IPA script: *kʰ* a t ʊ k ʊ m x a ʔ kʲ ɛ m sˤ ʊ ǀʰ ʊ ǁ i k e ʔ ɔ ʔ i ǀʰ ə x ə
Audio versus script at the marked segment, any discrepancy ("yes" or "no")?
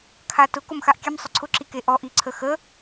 no